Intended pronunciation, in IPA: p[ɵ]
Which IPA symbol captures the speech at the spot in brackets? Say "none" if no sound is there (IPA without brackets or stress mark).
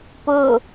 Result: ɵ